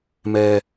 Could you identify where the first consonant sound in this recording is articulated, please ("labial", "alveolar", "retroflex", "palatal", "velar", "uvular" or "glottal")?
labial